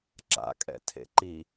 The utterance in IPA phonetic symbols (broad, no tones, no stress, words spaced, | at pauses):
ǁa̰kʼɛ̰ tʰḛǃi